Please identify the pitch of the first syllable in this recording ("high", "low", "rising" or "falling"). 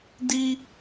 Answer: high